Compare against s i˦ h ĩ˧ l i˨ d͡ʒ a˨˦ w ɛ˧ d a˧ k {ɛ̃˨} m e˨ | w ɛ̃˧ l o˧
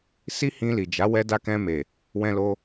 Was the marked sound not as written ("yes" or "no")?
yes